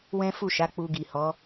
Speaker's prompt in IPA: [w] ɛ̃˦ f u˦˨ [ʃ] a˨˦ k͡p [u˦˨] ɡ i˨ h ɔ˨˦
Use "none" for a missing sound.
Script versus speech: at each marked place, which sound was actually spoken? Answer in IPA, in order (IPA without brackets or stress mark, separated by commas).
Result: w, ʃ, u˧